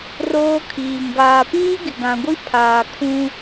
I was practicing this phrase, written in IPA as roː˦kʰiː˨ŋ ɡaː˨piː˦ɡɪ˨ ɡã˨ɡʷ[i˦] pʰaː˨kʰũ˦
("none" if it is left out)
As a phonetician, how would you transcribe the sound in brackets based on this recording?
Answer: i˦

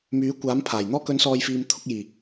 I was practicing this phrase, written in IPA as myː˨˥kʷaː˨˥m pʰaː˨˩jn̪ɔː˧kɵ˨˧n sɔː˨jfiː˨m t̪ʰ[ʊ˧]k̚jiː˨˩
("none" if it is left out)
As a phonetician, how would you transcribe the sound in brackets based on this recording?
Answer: ʊ˧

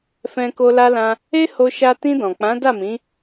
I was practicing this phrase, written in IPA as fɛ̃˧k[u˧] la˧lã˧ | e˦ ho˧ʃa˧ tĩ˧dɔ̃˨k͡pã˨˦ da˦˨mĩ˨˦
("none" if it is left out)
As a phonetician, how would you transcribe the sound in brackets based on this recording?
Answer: o˧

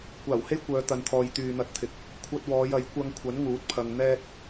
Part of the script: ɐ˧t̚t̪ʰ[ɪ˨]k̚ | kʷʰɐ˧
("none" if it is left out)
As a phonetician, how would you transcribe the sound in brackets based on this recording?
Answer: ɪ˨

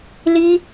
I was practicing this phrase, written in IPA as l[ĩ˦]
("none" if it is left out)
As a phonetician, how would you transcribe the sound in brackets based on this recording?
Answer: i˦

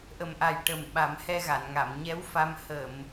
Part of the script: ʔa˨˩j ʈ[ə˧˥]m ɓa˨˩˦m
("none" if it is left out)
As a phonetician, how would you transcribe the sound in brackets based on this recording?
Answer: ə˨˩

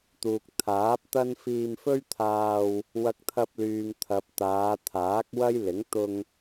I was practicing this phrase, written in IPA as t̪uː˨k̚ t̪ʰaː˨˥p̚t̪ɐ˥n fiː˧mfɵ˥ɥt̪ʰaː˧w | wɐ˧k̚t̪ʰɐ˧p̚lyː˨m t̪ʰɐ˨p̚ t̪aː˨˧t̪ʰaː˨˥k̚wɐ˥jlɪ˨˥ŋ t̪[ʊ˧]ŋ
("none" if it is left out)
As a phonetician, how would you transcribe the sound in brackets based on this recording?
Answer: ʊ˧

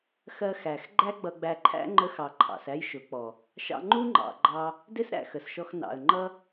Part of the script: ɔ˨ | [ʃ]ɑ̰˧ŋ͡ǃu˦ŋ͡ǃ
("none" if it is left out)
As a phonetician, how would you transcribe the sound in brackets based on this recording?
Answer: ʃ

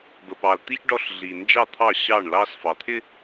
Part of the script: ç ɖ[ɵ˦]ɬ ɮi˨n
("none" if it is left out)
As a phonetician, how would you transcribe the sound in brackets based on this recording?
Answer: ɔ˦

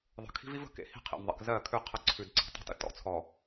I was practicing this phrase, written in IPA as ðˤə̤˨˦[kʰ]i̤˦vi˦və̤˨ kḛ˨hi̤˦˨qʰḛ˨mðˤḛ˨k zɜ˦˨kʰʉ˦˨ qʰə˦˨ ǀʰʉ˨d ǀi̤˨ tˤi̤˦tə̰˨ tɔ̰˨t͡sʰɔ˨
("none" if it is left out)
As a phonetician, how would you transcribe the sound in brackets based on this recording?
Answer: kʰ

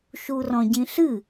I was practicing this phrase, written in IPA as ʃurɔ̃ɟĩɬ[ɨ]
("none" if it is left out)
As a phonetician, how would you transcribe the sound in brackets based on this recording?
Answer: ɨ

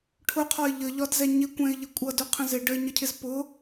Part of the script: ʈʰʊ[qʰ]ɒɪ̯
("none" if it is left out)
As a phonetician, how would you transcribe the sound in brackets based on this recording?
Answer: qʰ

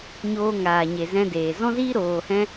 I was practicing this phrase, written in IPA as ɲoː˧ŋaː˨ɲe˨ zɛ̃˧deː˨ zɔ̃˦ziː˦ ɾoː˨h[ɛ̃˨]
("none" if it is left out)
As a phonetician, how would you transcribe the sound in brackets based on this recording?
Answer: ɛ̃˧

